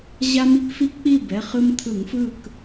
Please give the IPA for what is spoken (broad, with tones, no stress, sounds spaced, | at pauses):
ʑ a˦ m i˦ k f i˦ k k͡p i˥˨ b ɛ˩˧˩ χ ɯ˦ m t̪ʰ ɯ˧˩˧ ŋ f ɯ˥˨ k